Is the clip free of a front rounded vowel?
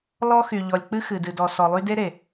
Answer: no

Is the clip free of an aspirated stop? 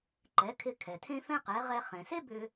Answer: no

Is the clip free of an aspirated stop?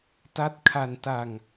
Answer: no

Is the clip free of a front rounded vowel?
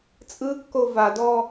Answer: yes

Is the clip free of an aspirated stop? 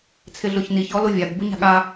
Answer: no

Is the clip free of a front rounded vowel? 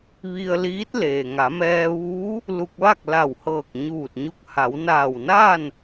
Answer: yes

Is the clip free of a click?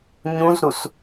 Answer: yes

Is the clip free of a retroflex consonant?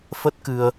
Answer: yes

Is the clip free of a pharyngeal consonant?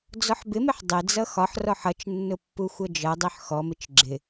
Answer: no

